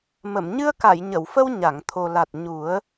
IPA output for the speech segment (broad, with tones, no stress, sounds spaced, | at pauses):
m ə˨˩˨ m ɲ ɨ˧ ə̯ k a˨˩˨ j ɲ ə˨˩˨ w f ə˧ w ɲ a˨˩˨ ŋ t̪ʰ o˨˩ l a˨˩ t̚ ɲ u˨˩˦ ə̯